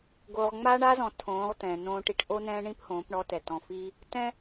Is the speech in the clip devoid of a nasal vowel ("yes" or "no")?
no